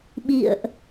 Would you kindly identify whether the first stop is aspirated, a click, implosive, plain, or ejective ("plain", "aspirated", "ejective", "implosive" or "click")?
implosive